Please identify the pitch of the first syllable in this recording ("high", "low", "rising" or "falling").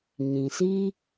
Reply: low